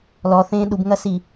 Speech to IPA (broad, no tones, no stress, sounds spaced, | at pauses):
l ɔ θ ẽː ɗ u b ŋ ɐ s i